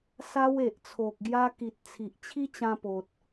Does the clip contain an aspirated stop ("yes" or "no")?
yes